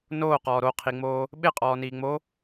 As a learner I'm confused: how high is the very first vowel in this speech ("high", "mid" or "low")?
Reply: mid